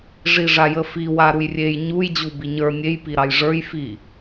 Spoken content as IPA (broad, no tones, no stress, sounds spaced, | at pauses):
ʐ i ʐ a j ə f i w a ɾ u j rʲ e j ɲ u j d͡ʑ u b i ɲ ə˞ nʲ e j p i ɾ ɑ j ʐ ə˞ j f i